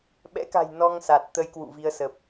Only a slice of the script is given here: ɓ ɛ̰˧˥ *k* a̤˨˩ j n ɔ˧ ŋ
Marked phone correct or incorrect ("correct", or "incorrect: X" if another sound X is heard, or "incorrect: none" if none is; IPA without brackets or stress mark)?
correct